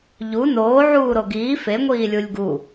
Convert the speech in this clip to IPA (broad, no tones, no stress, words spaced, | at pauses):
ʎu noːʕuːɾo ɡiː feŋʷiː lʲulʲɡu